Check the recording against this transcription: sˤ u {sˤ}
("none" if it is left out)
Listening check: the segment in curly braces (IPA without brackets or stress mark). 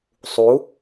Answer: none